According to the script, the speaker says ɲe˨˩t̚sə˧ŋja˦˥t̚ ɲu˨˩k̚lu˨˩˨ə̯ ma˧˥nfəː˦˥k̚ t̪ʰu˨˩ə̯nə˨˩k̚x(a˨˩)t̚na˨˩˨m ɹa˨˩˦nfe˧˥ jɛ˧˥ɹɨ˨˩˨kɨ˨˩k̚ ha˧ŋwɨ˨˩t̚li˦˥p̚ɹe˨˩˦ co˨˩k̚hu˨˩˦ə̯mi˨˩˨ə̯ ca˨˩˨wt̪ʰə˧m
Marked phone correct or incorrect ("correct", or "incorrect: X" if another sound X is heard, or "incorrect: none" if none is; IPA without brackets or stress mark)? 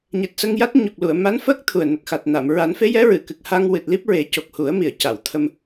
correct